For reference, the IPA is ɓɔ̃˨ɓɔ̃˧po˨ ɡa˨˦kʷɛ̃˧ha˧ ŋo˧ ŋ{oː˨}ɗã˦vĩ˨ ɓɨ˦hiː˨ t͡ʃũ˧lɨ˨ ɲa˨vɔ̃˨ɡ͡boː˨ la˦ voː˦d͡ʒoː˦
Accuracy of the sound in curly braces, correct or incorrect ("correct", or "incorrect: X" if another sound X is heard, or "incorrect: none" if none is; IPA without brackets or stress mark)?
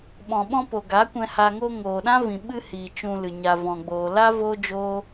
correct